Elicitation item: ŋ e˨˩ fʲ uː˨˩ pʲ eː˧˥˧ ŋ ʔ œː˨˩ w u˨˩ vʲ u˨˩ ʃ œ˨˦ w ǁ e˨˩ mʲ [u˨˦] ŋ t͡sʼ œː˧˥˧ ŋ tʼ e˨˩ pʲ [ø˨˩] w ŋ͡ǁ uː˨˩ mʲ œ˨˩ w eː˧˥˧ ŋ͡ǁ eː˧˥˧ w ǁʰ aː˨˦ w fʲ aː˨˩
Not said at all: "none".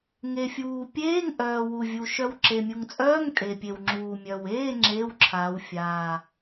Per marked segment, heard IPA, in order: u˨˩, e˨˩

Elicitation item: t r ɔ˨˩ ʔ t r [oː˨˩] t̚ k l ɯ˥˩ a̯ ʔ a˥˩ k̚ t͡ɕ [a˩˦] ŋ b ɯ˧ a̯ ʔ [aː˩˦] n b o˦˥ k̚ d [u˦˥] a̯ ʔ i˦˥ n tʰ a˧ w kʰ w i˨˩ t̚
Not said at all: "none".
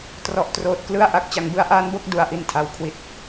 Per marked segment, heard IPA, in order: oː˨˩, a˩˦, aː˦˥, u˧

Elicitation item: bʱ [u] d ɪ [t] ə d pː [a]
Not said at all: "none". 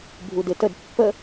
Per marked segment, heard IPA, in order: u, t, ə

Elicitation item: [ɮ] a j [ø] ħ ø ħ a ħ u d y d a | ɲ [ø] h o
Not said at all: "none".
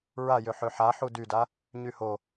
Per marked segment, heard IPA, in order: ɹ, ø, y

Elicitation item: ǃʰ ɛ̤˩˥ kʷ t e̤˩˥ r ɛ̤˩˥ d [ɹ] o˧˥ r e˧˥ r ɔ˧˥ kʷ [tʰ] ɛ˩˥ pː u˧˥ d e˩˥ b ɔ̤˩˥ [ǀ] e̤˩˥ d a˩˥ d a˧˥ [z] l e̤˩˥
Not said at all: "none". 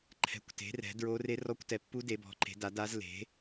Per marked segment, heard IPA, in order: ɹ, t, ǃ, z

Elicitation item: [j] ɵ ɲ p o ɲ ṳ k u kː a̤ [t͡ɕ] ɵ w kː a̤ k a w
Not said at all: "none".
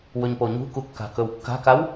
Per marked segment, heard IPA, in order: w, k

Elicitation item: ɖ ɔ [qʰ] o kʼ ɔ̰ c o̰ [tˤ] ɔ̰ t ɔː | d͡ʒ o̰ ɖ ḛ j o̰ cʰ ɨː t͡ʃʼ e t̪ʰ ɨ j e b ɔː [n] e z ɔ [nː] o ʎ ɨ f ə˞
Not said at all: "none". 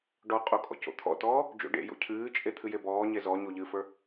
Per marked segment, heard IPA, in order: qʼ, t̪ʰ, ɲ, ɲ

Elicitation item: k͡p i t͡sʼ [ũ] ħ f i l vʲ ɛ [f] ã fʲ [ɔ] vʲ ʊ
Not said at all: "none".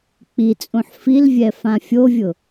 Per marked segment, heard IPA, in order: ũ, f, o

